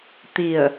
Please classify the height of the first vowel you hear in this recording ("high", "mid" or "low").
high